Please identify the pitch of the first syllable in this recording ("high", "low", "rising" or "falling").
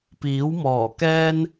rising